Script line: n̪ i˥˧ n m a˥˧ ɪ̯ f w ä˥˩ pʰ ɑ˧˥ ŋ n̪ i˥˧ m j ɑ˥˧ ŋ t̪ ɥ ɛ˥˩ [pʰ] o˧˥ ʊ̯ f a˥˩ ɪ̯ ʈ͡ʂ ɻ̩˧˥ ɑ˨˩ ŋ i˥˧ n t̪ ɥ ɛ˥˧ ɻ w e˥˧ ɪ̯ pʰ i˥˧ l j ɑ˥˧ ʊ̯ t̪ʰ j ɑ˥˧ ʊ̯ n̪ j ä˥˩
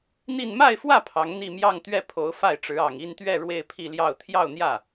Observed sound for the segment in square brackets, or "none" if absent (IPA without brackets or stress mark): pʰ